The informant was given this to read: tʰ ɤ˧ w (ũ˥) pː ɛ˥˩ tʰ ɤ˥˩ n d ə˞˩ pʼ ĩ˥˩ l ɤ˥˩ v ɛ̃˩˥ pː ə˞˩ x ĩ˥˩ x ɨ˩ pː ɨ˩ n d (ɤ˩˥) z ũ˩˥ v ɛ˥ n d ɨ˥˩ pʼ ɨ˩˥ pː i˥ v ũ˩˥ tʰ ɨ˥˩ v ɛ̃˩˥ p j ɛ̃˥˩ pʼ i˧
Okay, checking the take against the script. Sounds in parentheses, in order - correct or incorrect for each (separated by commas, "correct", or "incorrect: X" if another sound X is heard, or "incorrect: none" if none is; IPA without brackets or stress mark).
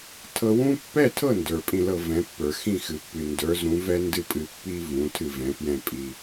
correct, incorrect: ə˞˩˥